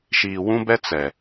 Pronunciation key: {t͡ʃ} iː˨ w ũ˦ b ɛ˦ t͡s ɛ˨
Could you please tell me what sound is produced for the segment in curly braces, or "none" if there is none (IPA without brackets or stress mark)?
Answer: ʃ